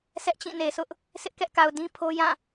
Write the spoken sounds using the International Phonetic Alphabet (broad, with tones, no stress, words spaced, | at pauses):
sʰɛ˦ʔt͡ɕĩ˦˨ne˨sʊ˦ʔ | sʰɪ˦ʔkɛ˦ʔka˨ʊ̯ dĩ˦pʰo˦jã˦˨